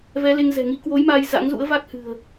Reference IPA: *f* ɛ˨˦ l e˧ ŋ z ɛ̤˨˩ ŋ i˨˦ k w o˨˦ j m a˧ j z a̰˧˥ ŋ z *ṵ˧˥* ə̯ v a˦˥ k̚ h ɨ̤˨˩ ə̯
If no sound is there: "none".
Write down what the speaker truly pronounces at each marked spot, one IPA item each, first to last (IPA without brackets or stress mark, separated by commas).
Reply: v, ṵ˧˥